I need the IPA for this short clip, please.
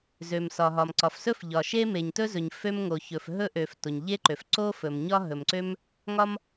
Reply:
z ø˩ m s ɒ˩ ɦ ɒ˩ m ǀ ɒ˩ f s ɵ˥ f ʎ ɒ˩ ʃ e˥ m e˩ ɲ t ɵ˥ z ɵ˩ ɲ f ø˥ m ŋ o˩ ç ɵ˩ f ɦ ɵ˥ ʔ ø˩ f t o˩ ɲ ʎ e˥ ǃ ø˩ f ǀ o˥ f ɵ˩ m ɲ ɒ˥ ɦ ɵ˩ m ǀ ø˥ m | ŋ ɒ˥ m

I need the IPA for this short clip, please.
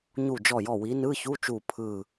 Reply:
ɲ u˧˩ d͡ʒ ɔ˧˩ j ɔ˧˩ w i˨˦ n ɯ˧˥˧ ç u˧˥˧ t͡ʃ u˧˩ pʰ ɯ˧˩

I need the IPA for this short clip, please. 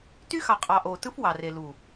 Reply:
t y˦ x ɑ˨ qʼ ɑ˨ ʔ oː˨ t ɯ˦ f w ɑ˨ r e˨ l u˨

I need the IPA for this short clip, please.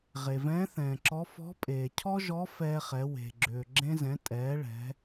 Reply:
ʁ e˩ v ɛ̃ː˧˥ θ ɛ̃ː˩ ǁ ɔ˧˥ f ɔ̤˧˥ pʼ eː˩ cʰ ɔ˥ ʒ ɔ˧˥ f ɛː˧ χ ɛ˩˧ w e̤˩ ɡ͡ǁ ʏː˩ ɡ͡ǁ ẽ˧ z ɛ̃˩˧ tʼ ɛː˩˧ ɭ ɛ̤˩˧

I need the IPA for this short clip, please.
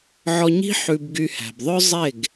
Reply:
ʕ ɔ˧ ɲ i̤˦ ħ ʉ˧ b ɡ y˧ h æ̤˨ b ðˤ œ˦ zˤ e˦˨ ɡ

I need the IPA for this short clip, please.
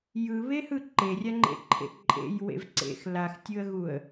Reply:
j ɯ β e h ɯ ǃ e rʲ a ŋ͡ǃ ḛ ǃʰ ḛ ǃʼ ḛ j w ḛ v ǀ ḛ x l a x tʲ ɯ ə̯ ɣ u ə̯

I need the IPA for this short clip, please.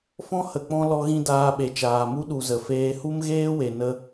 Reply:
f ɔ̃˦ h ə˨ k͡p ɔ̃˦ l ɔ˦ ɣ ĩ˦ d aː˧ ɓ e˨ t͡ʃ aː˨ m u˦ ɗ u˨ z ə˨ f eː˦ h u˦ m ɣ eː˦ w e˨ n ə˦

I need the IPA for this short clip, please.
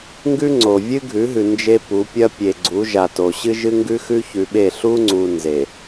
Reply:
ŋ ɡ ʉ˦ ŋ͡ǀ o˨ vʲ ɨ˦ ɡʱ ʉ˨˦ ɦ ʉ˨ n d͡ʒ e˦ p u˨˦ pʲ ɐ˦ pʲ e˨ ɡ͡ǀ u˨˦ ʒ a˨ t o˨ ɕ ɨ˦ ʒ ɨ˦ ŋ ɡ ʉ˦ x ʉ˦ ç ʉ˨ ɓ e˦˨ ɬ u˦ ŋ͡ǀ u˨ n z e˨

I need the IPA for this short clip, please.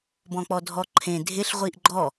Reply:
b ɔ̃ k͡p ɔ dʱ ɔ ǃʰ ẽ dʱ ɪ ɬ ʁʷ i ʔ ɡ͡ǃ ɔ

